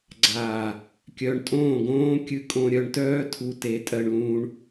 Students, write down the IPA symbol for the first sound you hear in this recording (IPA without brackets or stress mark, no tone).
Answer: ɡ͡ǀ